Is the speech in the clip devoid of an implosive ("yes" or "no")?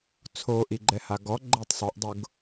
yes